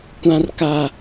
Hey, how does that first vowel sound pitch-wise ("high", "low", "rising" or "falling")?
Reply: high